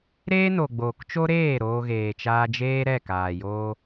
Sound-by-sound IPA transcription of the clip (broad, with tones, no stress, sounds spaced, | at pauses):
ɾ eː˦ n o˨ ɡ͡b oː˨ k t͡ʃ o˦ ɾ eː˦˨ ɾ oː˧ ɣ eː˨ t͡ʃ aː˧ d͡ʒ eː˦ ɾ ɛ˦˨ k aː˨ j oː˦